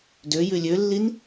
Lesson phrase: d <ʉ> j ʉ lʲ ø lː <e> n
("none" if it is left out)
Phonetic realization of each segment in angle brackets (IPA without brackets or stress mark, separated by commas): ø, i